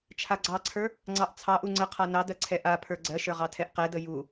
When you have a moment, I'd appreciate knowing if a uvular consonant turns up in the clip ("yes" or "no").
yes